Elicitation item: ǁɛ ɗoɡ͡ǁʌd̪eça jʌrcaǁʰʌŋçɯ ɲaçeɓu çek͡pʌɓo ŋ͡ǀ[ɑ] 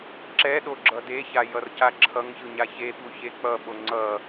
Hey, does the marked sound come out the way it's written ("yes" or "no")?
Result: no